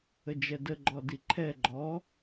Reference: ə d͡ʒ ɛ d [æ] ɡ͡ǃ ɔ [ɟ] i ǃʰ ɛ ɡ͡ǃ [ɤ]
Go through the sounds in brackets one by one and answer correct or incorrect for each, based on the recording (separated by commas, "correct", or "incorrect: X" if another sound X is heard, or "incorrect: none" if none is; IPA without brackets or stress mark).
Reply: incorrect: ə, incorrect: d, incorrect: ɔ